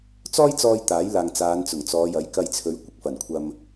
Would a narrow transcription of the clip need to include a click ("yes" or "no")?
no